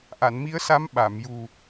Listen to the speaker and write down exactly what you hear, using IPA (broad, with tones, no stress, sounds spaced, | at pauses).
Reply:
ʔ a˨˩˨ n m i˧˥ ə̯ s a˧˥ m ɓ a˨˩˨ m j u˨˩